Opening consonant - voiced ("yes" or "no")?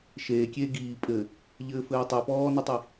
no